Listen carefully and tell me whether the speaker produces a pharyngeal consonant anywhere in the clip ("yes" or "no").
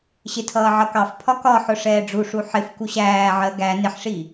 yes